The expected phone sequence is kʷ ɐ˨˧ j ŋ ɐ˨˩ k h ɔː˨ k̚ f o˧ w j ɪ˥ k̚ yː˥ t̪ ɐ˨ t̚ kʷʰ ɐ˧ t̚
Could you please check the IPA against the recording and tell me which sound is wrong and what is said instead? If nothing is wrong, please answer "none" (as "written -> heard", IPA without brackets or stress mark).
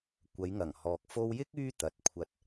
k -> ŋ